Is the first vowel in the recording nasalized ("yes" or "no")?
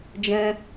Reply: yes